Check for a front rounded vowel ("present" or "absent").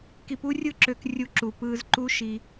present